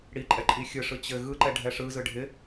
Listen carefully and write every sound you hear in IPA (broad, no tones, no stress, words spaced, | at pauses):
ɽiǃʼɛ ǃʼixʲɯʂɯ t͡ɕɘ ɣɯǃɛ ɖʱɛʂɯzɯ ɖʱɪ